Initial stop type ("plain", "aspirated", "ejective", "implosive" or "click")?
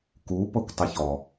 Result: plain